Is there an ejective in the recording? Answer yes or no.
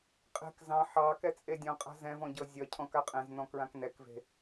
yes